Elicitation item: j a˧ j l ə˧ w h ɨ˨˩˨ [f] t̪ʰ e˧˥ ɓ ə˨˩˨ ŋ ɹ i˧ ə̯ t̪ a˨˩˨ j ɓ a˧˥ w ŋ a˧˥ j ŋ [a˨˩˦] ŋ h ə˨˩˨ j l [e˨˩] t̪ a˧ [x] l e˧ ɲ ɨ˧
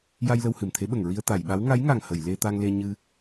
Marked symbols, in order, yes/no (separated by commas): no, no, no, no